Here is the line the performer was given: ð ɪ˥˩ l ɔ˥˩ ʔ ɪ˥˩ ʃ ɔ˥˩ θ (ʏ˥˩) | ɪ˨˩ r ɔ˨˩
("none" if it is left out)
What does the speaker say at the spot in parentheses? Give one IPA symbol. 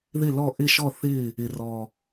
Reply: ɪ˥˩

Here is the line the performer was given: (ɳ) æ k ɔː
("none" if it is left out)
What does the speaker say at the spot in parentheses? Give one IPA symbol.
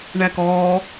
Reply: ɳ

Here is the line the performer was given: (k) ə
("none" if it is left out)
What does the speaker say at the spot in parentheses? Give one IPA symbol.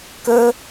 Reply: k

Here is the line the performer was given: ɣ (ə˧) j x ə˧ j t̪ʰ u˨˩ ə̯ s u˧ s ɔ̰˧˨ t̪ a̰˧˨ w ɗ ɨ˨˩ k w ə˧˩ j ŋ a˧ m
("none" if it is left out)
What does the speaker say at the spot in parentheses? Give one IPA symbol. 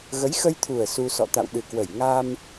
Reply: ə˨˦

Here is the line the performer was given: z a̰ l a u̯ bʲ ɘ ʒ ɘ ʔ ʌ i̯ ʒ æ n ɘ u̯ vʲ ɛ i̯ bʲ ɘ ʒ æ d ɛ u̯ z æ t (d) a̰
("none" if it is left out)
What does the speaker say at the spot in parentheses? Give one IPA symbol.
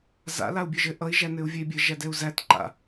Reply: ǃ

